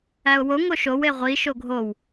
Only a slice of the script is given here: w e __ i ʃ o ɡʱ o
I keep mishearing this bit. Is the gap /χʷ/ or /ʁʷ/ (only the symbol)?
ʁʷ